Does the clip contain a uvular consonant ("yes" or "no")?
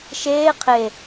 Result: yes